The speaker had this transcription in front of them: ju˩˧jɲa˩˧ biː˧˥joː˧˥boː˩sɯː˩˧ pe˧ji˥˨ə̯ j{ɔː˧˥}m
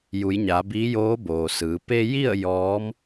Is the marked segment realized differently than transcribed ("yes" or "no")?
no